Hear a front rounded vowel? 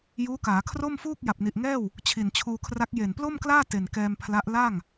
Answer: no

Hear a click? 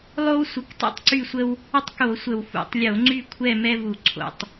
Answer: yes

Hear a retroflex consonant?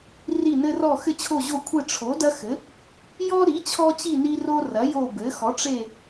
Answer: yes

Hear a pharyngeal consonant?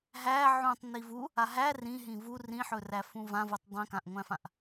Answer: yes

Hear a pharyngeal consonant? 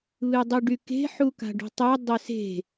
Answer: yes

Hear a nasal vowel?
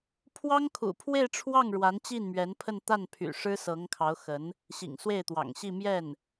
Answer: no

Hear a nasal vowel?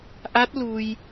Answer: no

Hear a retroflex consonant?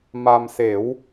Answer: no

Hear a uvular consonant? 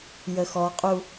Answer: yes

